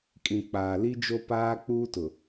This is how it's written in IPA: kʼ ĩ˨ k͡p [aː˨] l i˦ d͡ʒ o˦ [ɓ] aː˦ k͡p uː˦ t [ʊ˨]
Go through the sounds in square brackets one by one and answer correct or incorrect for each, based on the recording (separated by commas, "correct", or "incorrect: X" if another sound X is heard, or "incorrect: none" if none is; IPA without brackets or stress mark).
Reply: correct, incorrect: p, correct